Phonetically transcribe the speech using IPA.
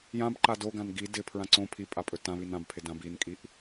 j ã b ǃ a d o ɡ ã n ɡ i d ɪ pʰ ɹ ã ǀ õ pʰ i pʼ a pʼ ɵ t ã β i n ã b pʰ ɪ d ã b i n kʼ i ʔ

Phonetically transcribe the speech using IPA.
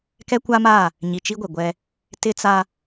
k ɛ˦ kʷ a˦ m a˦˨ | ɲ i˨ t͡ʃ i˦ ɡʷ e˨ ɡʷ ɛ˦ | t ɪ˦ t͡s a˦

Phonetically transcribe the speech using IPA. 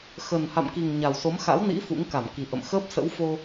x ə˨˩ n h a̰˧˨ m k i˨˩ ŋ ɲ a˨˩ w s o˨˦ m x a̰˧˥ w n ḭ˧˥ f ṵ˧˥ ŋ k a˧˩ m k i˨˩ ʔ ə̰˧˨ m x əː˦˥ p̚ s ə̰˧˥ w f o˧

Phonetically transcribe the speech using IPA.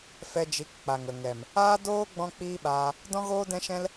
f ɛ˧ d͡ʒ i˨˦ k k͡p a˨ ŋ ə˨ ŋ ɛ˨ m | aː˦ d oː˦ ɡ͡b ɔ̃˦ k͡p iː˦ ɓ aː˧ | d ɔ̃˦ ɣ oː˦ d ɛ̃˦ ʃ ɛ̃˦ l

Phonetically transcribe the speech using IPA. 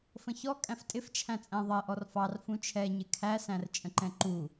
f ə̃ ç ɔ kʼ æ̃ f tʼ ɪ f t͡ʃʰ æ̃ t͡sʼ æ̃ ðˤ ɜ ʔ ɔ r f ɑ r f ũ t͡ʃʰ ɛ ɲ ɪ kʰ æ s æ̃ r t͡ʃʼ ə̃ ǃ ɛ̃ ǃ u

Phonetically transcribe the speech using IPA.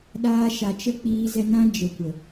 ɗ aː˧ ʃ a˨ t͡ʃ ə˦ k͡p iː˧ z ɛ˧ n ã˦ d͡ʒ ə˨ kʷ ə˨

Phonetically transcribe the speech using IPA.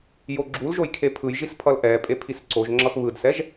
j o ɡ͡ǁ u l ʒ o j kʰ e pʰ ɯ j ʒ i s pʰ ʌ l ʔ ɛ pʼ e pʰ i s ǀ o ʒ ŋ͡ǁ ʌ x β ɯ d s ɛ ʒ

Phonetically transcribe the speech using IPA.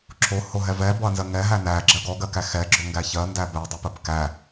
ǁʰ o h o ɦ ɛ v ɛ b ɔ ɐ̯ n z ɜ ŋ ɛ ɦ æ n æ ɡ͡ǁ ɜ ɡ ɔ ɡ ɜ k æ x ɛ ɡ͡ǁ o ŋ ɡ æ ç ɜ n d æ b ɛ dˤ o p ɜ p k æ

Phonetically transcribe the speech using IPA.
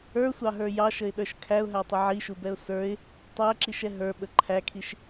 ə˞ sʷ ɑ ɦ ə˞ j ɑ ʃ ə ɪ̯ ɗ ə˞ ʃ kʰ æ ʊ̯ ɦ æ tˤ ə ʕ i ʃ u b ɛ ʊ̯ s ə˞ ɪ̯ | tˤ æ ǁ i ʃ ɛ ɦ ə˞ ɓ ə ǃʰ æ kʰ i ʃ

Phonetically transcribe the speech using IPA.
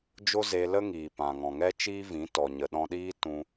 d͡ʒ o˦ z e˧ l ə˦ ŋ iː˨ p ã˨ ŋ ɔ̃˨ ŋ ɛ˦ t͡ʃ iː˦ v ĩ˨˦ t ɔ˨ ɲ ə˨ ɗ ɔ̃˧ ɗ iː˦ t ũ˧

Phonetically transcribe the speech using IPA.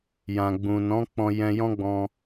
j ã˨ ɡ͡b ũ˨ n ɔ̃˨˦ k͡p ɔ̃˧ j ɛ̃˧ j ɔ̃˦ ɡ͡b ɔ̃˧

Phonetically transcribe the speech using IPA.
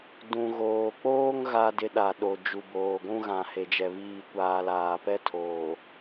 d ũ˨ ɣ oː˨ k͡p oː˦ ŋ ɣ a˦ d ɪ˦ ɗ a˨ ɗ o˨ d͡ʒ u˨ b oː˨ ɡʷ ũ˦ ɣ ã˨ h e˨ d͡ʒ ɛ˨ β iː˦˨ kʷ aː˨ l aː˨ p ɛ˦ tʰ oː˨

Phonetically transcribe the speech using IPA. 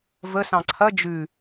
v ə s ɑ̃ ǀʰ ɐ d͡ʒ ʉ

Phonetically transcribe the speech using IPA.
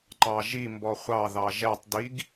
ǃ ɑ ʒ i m b ɔ χʷ ɑ ð ɑ ʒ ɛ tˤ d i ɡ

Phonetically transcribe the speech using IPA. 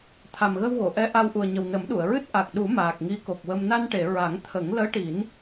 t̪ʰ a˨˩ m ɣ ə˧ w ɣ o˨˩˨ ʔ ɛ˧˥ ʔ a˧ w ʔ u˨˩ ə̯ ɲ ə˨˩ w n ə˨˩˦ m ɗ u˨˩˨ ə̯ ɹ ɨ˦˥ t̚ ʔ a˨˩ k̚ ɗ u˨˩˦ m aː˨˩ k̚ ŋ i˧˥ k o˨˩ k̚ w ə˧ m n a˧ n ʈ e˨˩˨ ɹ a˨˩˦ ŋ t̪ʰ ə˨˩˦ ŋ l əː˧˥ ʈ i˨˩˦ n

